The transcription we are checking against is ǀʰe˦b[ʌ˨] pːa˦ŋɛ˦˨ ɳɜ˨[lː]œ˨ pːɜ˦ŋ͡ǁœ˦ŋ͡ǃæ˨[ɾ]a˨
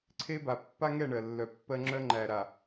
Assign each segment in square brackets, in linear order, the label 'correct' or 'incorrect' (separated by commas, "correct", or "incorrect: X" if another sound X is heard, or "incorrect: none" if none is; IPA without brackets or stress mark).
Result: incorrect: a˨, correct, correct